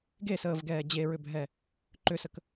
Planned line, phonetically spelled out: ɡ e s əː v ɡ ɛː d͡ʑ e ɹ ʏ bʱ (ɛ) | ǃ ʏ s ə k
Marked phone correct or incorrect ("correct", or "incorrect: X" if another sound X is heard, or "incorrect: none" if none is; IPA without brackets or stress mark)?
correct